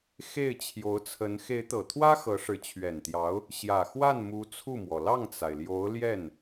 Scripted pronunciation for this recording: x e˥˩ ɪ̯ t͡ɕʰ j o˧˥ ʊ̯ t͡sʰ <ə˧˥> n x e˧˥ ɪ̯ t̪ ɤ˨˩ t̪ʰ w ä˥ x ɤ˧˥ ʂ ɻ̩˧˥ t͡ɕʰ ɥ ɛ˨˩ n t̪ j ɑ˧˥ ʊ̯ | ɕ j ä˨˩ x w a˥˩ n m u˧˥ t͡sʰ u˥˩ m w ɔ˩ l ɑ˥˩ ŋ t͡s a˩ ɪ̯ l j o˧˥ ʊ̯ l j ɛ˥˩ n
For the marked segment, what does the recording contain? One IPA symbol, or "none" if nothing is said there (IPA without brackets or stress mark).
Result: ə˧˥